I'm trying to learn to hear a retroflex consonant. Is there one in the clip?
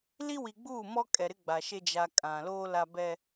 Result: no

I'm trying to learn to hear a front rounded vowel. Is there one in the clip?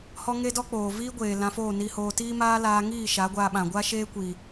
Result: no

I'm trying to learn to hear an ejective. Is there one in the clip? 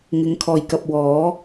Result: no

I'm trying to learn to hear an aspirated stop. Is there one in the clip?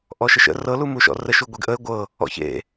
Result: no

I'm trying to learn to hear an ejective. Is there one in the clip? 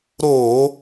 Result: no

